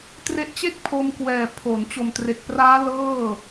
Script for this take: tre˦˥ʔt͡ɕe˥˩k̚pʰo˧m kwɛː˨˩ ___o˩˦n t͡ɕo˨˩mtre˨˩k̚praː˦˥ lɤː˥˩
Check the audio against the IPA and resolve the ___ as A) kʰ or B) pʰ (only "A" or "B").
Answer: B